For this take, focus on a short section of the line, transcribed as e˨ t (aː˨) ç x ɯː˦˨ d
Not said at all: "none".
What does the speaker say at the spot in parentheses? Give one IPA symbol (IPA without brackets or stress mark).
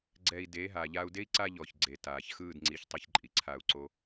aː˨